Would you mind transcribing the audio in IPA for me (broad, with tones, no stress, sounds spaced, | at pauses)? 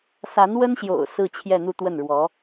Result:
s a˧˥ n w ə˥ n ɕ j o̰˨˩ ʊ̯ s ɹ̩˥˧ t͡ɕʰ j ɛ˥˧ n̪ u˥˧ t̪ w ə˥˩ n ɻ w ɔ˧˥